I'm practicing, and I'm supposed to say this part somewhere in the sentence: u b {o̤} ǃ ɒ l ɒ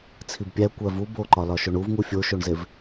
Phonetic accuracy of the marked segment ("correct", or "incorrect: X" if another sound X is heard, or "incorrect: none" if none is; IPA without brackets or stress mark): incorrect: o